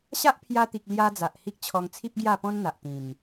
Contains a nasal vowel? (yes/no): yes